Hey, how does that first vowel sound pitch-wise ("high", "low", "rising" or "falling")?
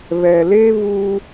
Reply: low